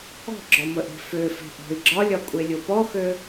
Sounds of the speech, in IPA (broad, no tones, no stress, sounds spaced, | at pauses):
ɔ̤ ɡ͡ǁ ɒ m ə ʔ e̤ f ø f e̤ ʔ ɔ̤ i̯ ɡ͡ǁ ɒ lʲ ɒ kʷʼ e lʲ o p ɔ x ø